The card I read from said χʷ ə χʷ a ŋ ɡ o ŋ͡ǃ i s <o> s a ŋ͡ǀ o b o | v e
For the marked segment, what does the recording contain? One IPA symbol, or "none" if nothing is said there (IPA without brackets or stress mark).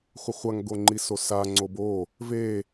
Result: o